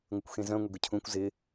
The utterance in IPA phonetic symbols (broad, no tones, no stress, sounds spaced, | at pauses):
ŋʷ ɪ kʷ x ẽ z œ̃ ŋʷ e ɡ ʊ cʰ ũ kʷ z ɪ